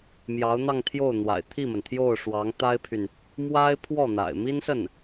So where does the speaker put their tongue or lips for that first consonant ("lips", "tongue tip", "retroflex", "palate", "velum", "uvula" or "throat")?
lips